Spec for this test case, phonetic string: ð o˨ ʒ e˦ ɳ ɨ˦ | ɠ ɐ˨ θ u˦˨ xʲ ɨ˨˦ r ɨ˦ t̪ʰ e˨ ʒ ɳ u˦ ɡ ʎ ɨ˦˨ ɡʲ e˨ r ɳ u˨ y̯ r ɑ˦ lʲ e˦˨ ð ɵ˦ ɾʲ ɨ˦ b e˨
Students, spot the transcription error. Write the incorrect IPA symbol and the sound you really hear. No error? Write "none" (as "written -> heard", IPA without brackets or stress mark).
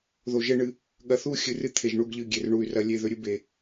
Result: ɑ˦ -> ɐ˦